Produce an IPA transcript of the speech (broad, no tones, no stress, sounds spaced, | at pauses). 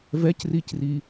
v ɛ c r i c r i